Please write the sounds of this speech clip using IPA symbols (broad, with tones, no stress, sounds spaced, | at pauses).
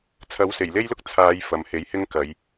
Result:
t͡sʰ ɐ˨˥ w s e˨˩ j l e˥ j l ʊ˥ k̚ t͡sʰ aː˨˧ j f ɐ˨ m h e˨˥ j h ɪ˥ ŋ k ɐ˨˧ j